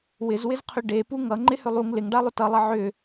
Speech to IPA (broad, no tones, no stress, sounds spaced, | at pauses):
w ɪ z w ɪ z qʰ ʏ ɖ e p u ŋ ʌ ŋ͡ǃ ɪ h ʏ lˠ u ŋ l ɪ ŋ ɖ a lˠ ʏ t ʌ lˠ ʌ ʕ ʏ